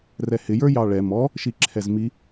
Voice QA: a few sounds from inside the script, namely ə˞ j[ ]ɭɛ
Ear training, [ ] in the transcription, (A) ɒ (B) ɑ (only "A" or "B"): B